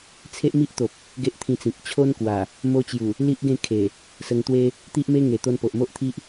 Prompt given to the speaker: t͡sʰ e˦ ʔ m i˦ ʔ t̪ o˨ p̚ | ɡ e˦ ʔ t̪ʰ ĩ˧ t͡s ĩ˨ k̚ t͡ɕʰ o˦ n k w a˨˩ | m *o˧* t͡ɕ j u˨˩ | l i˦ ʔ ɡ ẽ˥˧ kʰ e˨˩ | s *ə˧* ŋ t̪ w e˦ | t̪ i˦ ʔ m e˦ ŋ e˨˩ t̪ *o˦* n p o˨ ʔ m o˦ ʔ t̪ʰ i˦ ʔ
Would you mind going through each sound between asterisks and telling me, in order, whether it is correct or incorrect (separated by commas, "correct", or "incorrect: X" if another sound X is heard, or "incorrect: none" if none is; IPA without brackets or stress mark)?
correct, correct, incorrect: o˧